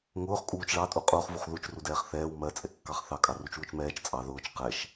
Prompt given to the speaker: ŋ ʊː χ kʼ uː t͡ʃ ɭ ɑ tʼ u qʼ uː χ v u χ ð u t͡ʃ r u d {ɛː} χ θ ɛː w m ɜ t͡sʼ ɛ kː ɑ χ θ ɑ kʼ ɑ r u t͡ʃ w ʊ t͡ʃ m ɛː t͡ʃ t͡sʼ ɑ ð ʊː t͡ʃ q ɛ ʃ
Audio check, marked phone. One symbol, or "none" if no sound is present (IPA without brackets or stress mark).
ɛː